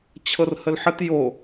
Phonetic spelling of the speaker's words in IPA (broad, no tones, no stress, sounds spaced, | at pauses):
t͡ɕʰ ɤ r h ə l ħ ə t j o